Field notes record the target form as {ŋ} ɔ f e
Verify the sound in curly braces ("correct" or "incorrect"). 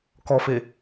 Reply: incorrect